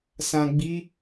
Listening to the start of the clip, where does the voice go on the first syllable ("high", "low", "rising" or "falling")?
low